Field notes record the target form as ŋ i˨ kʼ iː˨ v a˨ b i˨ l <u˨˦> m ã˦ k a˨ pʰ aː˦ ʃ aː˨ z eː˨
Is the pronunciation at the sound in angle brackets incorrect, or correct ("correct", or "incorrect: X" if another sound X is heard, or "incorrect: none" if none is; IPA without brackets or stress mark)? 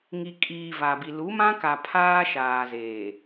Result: correct